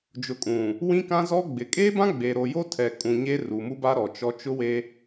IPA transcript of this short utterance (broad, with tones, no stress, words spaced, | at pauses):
d͡ʒʊ˨kʼũ˨ | wĩ˦kã˦zɔ˦ ɡ͡bɪ˨ kʼeː˦bã˦ ɡ͡be˨ɾo˨jo˦tʰɛ˨ kʼũ˨ ɲe˦ru˨mu˦ ba˦ ɾɔ˨t͡ʃɔ˦ t͡ʃʊ˦we˦